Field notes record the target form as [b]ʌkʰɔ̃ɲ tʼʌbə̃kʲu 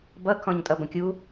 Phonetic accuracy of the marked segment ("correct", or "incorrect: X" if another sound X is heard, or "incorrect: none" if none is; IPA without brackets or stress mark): correct